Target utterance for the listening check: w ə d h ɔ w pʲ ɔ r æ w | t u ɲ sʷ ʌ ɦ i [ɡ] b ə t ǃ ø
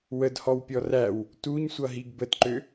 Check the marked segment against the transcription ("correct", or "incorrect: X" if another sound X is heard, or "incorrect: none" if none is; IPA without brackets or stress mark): correct